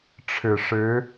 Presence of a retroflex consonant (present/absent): present